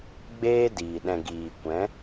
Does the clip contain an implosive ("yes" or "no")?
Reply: yes